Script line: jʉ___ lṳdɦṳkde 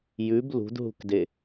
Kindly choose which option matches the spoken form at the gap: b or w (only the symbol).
b